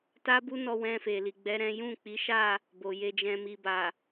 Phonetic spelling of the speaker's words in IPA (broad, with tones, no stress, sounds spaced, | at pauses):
t a˦ b u˦ n ɔ˧ w ɛ̃˧ f e˨ l i˨ ɡ͡b ɛ˨˦ ɾ ɛ̃˦ j ũ˦˨ k͡p i˨˦ ʃ a˦˨ | b o˨ j e˧ d͡ʒ ɛ̃˧ m i˨ b a˨